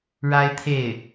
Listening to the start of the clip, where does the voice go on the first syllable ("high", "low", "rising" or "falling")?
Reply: high